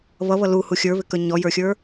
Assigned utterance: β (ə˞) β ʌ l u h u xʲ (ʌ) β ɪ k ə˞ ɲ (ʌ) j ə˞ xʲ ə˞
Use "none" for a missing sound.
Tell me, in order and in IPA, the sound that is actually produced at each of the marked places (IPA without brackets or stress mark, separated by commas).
ʌ, ə˞, ɔ